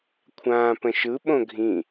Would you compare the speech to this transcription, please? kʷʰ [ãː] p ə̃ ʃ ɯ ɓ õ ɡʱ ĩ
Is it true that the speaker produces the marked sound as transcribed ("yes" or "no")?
yes